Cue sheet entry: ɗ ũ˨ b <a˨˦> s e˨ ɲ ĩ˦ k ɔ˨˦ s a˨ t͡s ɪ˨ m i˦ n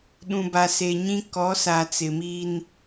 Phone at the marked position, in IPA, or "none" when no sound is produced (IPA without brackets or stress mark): a˨